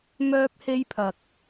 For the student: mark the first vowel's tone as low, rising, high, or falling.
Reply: high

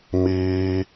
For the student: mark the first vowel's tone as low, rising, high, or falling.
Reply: high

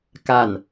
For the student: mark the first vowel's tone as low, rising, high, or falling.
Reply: falling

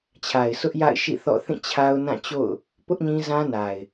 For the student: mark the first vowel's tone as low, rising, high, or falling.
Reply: low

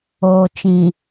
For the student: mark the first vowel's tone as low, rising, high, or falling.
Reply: low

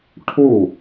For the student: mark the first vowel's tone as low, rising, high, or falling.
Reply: falling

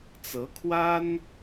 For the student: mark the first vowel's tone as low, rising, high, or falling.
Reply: rising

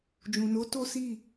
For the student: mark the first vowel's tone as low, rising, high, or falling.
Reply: low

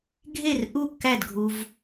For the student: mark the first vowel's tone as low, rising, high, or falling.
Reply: falling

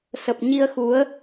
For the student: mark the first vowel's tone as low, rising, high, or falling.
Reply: low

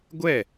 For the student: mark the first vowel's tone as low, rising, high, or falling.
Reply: falling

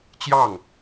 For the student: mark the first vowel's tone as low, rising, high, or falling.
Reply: falling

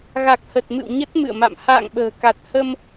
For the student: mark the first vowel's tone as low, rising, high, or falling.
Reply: low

